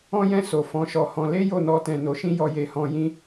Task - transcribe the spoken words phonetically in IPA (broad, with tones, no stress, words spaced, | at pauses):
ɔ̃˦jɛ̃˦˨so˨ fɔ̃˨˦ʃɔ˧hɔ̃˧ le˦ jo˦˨nɔ˧tɛ̃˨ no˨ʃĩ˧ jɔ˨je˨hɔ̃˨ jĩ˧